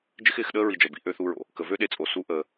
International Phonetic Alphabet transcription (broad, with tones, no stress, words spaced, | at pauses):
d͡ʒɪ˥xɪː˧xɗəː˥ ɹi˧d͡ʒə˩bḭ˥ ʔø˧θu˧ɹo̰˩ | kə˩vø˥ɗe˧t͡sʼo˩ su˥ʔəː˧